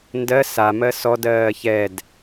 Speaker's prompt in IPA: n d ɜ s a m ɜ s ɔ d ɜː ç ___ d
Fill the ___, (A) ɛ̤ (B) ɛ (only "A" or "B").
B